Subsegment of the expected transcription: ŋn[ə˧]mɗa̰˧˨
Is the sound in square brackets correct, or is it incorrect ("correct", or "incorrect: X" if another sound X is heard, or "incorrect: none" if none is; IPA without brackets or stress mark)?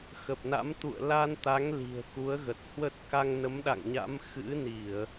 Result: incorrect: ə˨˦